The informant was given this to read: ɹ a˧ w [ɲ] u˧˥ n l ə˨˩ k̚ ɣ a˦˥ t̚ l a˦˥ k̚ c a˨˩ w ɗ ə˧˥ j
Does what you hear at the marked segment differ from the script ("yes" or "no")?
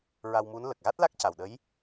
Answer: yes